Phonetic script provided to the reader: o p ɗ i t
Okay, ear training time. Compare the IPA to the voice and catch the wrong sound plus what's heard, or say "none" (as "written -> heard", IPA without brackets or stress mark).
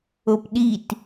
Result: none